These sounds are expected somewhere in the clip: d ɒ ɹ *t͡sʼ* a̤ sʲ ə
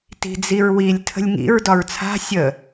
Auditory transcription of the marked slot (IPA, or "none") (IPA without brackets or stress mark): t͡sʰ